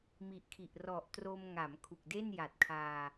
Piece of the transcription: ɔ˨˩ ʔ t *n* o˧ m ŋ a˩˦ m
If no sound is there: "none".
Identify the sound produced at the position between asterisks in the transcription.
r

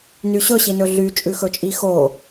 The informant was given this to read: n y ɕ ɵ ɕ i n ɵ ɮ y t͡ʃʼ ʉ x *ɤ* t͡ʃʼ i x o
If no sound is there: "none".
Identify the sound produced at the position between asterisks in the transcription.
ɵ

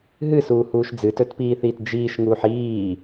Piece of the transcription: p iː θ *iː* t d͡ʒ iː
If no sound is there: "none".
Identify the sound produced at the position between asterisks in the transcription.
iː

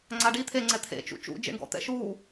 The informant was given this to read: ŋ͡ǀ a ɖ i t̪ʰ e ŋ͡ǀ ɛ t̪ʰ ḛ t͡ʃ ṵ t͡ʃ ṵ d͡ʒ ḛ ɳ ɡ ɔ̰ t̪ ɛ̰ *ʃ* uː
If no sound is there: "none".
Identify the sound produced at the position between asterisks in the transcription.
ʃ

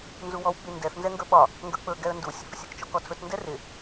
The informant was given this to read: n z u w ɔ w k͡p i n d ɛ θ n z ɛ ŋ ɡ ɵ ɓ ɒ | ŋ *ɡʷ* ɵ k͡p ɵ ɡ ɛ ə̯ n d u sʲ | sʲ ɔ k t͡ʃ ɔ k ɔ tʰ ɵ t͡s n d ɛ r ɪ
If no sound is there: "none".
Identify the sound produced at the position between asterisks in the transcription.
ɡ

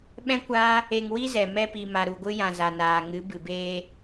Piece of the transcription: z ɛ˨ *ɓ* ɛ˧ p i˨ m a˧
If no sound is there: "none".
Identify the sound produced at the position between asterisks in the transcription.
m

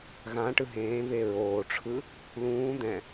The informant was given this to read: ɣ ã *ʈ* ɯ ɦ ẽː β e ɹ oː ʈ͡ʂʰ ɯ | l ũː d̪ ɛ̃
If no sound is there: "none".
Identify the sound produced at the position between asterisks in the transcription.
ʈ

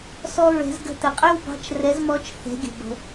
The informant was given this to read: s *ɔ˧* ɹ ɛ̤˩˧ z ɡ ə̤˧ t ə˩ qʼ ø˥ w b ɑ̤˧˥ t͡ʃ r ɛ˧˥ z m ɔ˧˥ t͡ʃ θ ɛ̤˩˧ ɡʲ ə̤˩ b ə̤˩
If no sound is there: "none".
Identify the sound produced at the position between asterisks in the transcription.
ɔ˧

